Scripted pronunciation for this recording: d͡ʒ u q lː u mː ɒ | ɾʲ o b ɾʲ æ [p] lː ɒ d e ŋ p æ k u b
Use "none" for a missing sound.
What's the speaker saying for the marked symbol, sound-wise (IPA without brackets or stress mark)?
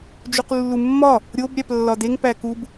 p